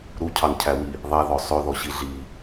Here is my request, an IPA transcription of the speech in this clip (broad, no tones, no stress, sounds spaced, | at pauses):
ɾ u cʰ ɑ n cʰ æ w i | ðˤ ɛ ð ɔ sˤ ɵ ð ɔ ɕ i ɮ i